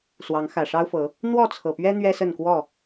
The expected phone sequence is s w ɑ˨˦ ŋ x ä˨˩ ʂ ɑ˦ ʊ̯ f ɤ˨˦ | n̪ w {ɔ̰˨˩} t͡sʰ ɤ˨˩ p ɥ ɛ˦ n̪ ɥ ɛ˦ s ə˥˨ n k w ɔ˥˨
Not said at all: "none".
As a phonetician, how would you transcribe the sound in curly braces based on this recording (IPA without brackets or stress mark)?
ɔ˥˨